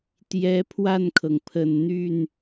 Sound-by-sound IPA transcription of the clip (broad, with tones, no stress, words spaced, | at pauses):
t̪jɛ˧˥pʰwa˥˩nkʰɤ˩ŋpʰə˨˩n n̪y˥˩n